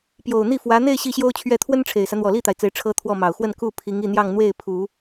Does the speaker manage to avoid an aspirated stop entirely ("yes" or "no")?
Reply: no